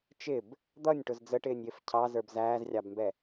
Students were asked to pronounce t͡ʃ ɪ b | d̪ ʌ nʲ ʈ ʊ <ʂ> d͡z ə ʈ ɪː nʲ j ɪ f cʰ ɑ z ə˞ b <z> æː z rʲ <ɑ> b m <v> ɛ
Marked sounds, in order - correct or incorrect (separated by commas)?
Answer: incorrect, correct, correct, incorrect